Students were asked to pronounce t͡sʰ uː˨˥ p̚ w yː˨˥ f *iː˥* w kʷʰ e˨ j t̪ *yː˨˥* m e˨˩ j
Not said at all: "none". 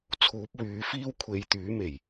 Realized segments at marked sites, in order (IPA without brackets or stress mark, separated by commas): iː˥, yː˨˥